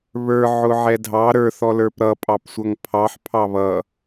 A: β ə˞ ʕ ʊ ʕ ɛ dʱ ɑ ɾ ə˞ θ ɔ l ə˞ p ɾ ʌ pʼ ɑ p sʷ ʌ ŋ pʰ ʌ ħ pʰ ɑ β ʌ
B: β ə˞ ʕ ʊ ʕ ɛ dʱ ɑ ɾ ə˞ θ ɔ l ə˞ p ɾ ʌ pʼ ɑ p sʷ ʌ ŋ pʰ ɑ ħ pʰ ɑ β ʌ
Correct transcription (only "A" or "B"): B